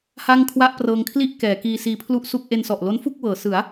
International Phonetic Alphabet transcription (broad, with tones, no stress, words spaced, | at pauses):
ha˥˩ŋkʰwa˥˩ʔprɤː˧ŋkʰli˥˩ʔ kɛː˩˦ kiː˧siː˧pʰlu˥˩ʔsu˥˩k̚ ʔe˧nsɔ˨˩ʔlo˦˥n fu˥˩k̚wɤː˩˦sɯ˩˦a̯